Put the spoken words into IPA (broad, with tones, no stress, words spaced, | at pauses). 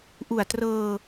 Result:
ʔu˨˩a̯trɤː˧